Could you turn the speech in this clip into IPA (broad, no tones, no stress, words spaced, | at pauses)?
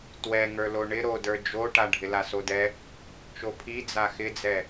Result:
twɛŋə˞lo ɳɪ ɾodə˞ d͡ʒoʈa ɖʱɪlasodɛ | t͡ʃopʰi d͡zaxɪd͡zɛ